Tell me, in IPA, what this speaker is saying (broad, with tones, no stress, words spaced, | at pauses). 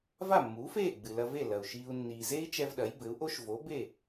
va˥˩mːuː˩˥feː˥˩ ɡ͡bɨ˩lɐ˧ve˥˩ lɐ˩u̯ʃiː˧u̯ nːiː˩ze˥i̯ t͡ʃɛ˧v ɗɐ˩˥jbɘ˩˥u̯ ʔo˥ʃvo˩˥ be˥˩